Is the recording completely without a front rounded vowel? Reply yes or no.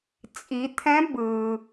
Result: yes